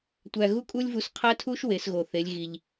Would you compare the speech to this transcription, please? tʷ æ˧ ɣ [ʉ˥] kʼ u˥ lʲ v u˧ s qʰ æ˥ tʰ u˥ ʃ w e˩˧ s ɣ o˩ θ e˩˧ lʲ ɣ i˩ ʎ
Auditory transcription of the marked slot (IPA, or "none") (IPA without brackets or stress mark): u˥